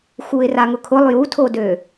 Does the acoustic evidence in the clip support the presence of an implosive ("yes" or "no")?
no